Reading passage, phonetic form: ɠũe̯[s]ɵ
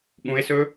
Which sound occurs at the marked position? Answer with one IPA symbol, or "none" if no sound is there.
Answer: s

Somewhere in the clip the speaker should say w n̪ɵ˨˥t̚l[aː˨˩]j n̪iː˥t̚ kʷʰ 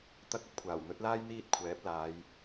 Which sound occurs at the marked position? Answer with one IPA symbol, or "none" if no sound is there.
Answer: aː˥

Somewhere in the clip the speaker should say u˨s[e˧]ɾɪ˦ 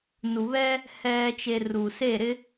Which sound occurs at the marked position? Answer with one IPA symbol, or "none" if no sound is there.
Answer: e˦˨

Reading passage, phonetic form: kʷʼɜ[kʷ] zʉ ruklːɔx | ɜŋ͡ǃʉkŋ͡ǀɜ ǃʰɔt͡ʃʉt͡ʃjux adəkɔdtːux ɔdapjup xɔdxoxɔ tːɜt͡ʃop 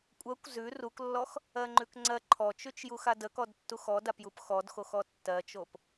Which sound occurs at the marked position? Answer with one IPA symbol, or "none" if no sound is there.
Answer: kʷ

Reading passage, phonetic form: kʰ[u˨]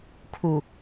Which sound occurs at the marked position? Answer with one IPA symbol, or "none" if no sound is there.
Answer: u˨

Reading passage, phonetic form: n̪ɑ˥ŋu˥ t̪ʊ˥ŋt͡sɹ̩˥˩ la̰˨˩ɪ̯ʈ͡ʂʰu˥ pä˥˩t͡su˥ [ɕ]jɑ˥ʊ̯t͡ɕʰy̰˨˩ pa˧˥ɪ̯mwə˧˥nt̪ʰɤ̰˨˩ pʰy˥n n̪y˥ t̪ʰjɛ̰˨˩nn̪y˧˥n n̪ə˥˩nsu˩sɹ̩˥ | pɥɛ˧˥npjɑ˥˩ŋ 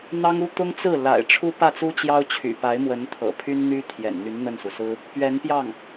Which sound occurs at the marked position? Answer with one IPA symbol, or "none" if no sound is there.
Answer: t͡ɕ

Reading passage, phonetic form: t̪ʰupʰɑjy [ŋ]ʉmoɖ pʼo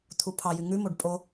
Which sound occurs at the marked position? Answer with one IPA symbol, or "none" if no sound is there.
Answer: ŋ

